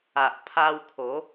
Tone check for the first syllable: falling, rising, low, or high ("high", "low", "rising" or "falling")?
low